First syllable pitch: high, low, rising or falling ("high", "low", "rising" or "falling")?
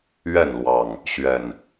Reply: falling